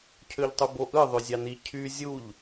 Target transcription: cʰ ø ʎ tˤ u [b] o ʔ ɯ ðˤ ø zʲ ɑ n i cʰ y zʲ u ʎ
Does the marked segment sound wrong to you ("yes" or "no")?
no